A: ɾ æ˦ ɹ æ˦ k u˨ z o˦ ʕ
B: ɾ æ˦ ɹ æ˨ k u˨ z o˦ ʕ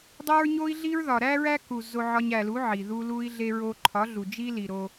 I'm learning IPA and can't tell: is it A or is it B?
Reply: A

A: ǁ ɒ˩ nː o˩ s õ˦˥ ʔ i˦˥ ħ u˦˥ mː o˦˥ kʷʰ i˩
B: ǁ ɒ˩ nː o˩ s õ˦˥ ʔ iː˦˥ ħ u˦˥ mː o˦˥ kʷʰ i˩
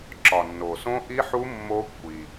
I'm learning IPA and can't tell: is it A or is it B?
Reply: A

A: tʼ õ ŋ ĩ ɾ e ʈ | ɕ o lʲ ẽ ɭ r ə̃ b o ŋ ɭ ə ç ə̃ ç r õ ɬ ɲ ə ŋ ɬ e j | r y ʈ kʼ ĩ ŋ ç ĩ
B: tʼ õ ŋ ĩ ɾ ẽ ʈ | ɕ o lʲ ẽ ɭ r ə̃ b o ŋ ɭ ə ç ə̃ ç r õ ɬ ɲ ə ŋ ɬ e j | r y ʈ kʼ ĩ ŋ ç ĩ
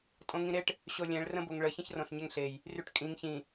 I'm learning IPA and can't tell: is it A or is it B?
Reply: A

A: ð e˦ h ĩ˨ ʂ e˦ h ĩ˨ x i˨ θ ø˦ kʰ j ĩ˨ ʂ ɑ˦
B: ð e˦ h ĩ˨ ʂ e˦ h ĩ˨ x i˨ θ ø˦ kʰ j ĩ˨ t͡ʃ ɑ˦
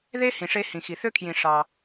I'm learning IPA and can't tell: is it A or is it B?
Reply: A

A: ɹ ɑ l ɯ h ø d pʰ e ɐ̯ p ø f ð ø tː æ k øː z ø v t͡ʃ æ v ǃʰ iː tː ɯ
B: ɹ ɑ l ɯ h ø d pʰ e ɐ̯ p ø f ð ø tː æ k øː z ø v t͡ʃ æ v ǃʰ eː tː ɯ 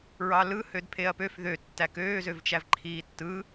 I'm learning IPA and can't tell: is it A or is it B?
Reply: A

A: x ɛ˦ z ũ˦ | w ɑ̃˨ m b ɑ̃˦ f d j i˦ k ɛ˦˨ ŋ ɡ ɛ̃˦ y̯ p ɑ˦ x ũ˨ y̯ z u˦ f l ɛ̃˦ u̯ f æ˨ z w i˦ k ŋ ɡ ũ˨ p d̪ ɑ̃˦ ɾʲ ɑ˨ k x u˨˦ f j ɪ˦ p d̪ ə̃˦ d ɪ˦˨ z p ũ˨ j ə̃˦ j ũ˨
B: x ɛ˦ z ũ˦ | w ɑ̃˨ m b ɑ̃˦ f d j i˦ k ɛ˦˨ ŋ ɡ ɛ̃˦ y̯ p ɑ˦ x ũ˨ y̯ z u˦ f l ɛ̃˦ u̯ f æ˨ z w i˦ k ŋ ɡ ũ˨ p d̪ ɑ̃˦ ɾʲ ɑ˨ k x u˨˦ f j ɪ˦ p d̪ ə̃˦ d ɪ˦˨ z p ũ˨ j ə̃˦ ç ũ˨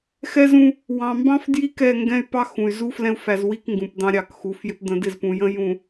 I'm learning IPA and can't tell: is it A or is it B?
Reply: A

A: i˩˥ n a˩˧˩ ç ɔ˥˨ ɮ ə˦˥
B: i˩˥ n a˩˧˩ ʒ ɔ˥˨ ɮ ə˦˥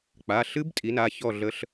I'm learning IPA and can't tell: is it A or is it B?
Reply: A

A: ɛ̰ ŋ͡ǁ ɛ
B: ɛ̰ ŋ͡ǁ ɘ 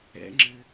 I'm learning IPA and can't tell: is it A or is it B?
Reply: B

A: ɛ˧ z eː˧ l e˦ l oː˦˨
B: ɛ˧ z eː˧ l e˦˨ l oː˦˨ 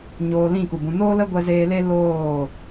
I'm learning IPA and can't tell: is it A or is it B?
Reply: A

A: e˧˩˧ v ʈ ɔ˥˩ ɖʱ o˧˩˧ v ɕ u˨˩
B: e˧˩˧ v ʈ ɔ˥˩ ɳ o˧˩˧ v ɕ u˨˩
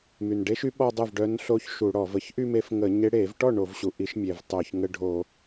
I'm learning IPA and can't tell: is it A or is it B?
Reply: B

